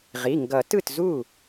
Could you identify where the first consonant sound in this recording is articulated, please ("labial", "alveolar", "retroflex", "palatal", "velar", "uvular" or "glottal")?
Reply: uvular